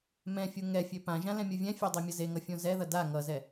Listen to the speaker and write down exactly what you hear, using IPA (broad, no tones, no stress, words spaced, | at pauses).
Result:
mɛ̃fʲu ŋɛfʲø pãʒã lɛ̃mʲuvʲɛ̃fʲə˞ dˤemʲʌzeŋʌ fʲõzɛðʌ da ŋʌzɛ